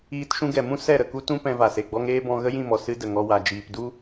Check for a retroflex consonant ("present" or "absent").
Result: absent